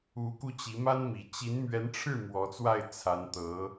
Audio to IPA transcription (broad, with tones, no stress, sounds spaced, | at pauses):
u˧˥ k u˧ t͡ɕ i˧˥ m a˥ n m i˨˩ t͡ɕ i˧˥ n m ɥ ɛ˧˥ n ʈ͡ʂʰ ɻ̩˥˩ m w ɔ˧˥ t͡s w a˥˩ ɪ̯ t͡sʰ a˧˥ n t̪ ɤ˧˥